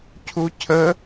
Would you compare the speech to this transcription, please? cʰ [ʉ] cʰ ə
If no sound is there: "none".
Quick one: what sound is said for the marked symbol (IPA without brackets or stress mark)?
u